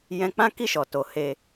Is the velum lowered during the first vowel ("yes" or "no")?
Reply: yes